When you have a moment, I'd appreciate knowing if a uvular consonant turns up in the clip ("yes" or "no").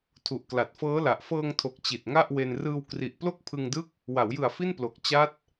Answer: no